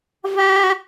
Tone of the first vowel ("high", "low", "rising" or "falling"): high